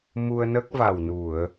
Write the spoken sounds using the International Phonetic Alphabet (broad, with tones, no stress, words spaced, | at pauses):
mu˧ə̯nə˦˥k̚ va˨˩wnu˨˩˨ə̯